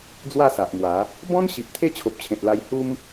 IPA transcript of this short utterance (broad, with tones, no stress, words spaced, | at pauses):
d͡zwa˥˧sa˨ʔmwa˨˦ | bɔ̃˦nɕi˨p̚ t̪ʰe˥˧t͡ɕʰo˨p̚t͡ɕʰẽ˨t̚la˧j hu˦m